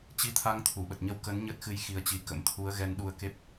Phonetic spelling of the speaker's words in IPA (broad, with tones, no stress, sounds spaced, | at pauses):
t͡ɕ i˧ t̪ʰ a˧ ŋ t̪ʰ u˧˩ ɓ ə˨˩ t̚ ɲ ə˧ w k ə˨˦ n ɲ ə˦˥ t̚ x ɨ˧ j x i˨˦ ə̯ t͡ɕ i˨˦ k ə̰˧˥ m t̪ʰ u˨˦ ə̯ ɣ ɛ˧ n ɗ u˧ ə̯ k e˦˥ p̚